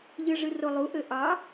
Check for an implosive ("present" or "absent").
absent